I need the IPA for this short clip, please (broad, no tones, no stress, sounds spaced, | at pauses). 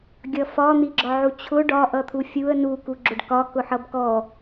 ɡʲ ʌ f ɒ n̪ i ɡ͡ǁ ɒ ʕ u t͡ɕʰ ʊ ɖ ɒ ʔ ʌ t̪ʰ u fʲ u ə̯ n u k u ɡ͡ǁ ʊ ɖ k ɒ k ʊ ħ ʌ b k ɔ